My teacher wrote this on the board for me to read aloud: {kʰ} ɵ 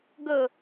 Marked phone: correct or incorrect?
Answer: incorrect